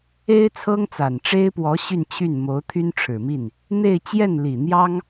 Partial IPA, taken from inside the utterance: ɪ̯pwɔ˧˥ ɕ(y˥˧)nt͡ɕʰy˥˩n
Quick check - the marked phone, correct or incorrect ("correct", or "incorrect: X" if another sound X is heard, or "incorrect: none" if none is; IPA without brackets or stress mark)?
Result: correct